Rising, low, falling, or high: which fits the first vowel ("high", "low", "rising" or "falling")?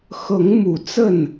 rising